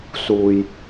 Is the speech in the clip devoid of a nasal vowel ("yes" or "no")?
yes